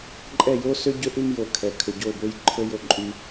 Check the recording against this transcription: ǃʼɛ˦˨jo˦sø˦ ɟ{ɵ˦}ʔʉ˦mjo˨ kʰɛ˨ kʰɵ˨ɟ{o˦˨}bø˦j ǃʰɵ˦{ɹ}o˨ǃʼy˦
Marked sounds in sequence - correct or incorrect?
correct, correct, incorrect: j

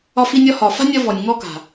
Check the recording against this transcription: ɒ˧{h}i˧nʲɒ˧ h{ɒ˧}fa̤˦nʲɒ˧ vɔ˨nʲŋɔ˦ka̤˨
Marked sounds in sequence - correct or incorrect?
incorrect: f, incorrect: ɒ˨

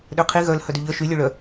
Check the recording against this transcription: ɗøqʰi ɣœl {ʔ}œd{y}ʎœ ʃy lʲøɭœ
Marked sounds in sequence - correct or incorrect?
incorrect: h, correct

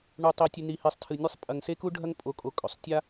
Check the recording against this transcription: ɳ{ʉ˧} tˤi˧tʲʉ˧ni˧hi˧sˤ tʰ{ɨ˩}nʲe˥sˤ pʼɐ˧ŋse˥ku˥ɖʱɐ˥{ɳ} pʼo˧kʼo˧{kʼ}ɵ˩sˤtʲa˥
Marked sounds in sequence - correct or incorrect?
incorrect: u˧, incorrect: ɨ˧, incorrect: ŋ, correct

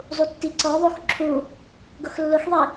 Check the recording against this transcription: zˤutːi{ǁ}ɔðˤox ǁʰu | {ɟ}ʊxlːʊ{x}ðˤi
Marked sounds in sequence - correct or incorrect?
incorrect: ǀ, incorrect: ɡ, correct

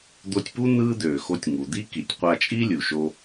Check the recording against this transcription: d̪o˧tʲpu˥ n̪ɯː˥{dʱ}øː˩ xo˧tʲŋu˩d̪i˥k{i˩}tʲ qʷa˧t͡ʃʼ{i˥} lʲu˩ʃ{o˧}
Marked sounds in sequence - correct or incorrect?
incorrect: d̪, correct, correct, correct

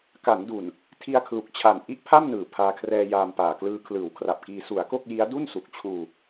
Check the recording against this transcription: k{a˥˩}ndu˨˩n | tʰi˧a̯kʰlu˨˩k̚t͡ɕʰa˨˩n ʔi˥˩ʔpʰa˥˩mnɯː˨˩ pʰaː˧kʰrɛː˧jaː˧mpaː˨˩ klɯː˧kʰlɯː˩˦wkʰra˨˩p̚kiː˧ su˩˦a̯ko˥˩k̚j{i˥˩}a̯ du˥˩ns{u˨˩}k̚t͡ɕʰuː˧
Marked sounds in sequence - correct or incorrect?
incorrect: a˩˦, incorrect: i˦˥, correct

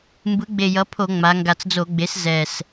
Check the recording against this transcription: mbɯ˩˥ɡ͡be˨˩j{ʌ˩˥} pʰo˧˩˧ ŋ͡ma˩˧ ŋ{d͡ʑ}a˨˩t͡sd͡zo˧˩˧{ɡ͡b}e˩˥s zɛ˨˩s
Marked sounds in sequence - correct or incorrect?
correct, incorrect: ɡ, correct

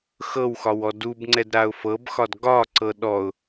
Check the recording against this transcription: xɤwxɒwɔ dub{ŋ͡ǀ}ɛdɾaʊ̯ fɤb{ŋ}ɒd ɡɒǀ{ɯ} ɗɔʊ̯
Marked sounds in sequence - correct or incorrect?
correct, incorrect: x, incorrect: ɤ

